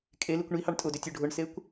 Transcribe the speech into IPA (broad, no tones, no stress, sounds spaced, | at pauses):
kʼ e l i kʷ ɳ i h ɑ ɳ tʼ ʊ d ʏ tʲ o ɖʱ ʊ ɳ s e kʷ